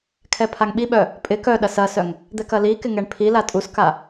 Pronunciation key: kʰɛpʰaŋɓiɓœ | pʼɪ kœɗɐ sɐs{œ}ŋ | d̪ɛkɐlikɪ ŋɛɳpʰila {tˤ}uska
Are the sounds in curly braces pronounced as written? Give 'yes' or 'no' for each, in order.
yes, no

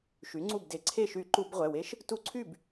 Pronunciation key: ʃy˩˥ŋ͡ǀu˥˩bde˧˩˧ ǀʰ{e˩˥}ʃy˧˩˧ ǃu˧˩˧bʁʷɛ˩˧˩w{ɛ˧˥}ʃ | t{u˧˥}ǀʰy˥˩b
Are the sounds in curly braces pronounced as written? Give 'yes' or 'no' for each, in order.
no, no, yes

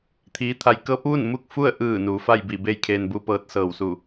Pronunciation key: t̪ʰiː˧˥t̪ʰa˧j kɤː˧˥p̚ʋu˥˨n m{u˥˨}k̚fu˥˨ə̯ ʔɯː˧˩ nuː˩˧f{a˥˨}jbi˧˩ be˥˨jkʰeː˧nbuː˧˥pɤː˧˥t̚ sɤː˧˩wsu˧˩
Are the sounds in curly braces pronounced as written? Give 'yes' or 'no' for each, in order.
yes, yes

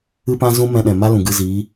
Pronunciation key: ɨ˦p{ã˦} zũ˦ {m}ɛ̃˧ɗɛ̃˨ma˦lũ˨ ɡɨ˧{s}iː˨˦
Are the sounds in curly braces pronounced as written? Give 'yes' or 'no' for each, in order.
yes, yes, no

